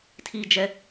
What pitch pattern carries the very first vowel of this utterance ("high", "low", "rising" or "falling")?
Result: high